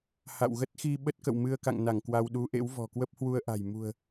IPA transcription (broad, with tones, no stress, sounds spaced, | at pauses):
h a̰˧˨ w ɣ ə˦˥ t̚ x i˧ ɓ ə˦˥ t̚ k ə̰˧˨ w m ɨ˧ ə̯ k a̰˧˨ ŋ n a˧˩ ŋ k w a˧ w ɗ u˨˦ ʔ ḛ˧˥ w v ɔ̤˨˩ k w ə˦˥ p̚ h w u˧ ə̯ ʔ a̤˨˩ j m ṳ˨˩ ə̯